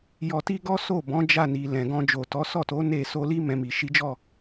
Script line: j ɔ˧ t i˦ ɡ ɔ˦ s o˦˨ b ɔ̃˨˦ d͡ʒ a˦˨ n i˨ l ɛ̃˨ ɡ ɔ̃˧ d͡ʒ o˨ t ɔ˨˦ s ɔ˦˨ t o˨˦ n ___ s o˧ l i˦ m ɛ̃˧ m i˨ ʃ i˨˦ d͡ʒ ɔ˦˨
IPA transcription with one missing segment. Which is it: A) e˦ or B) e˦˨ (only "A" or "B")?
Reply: B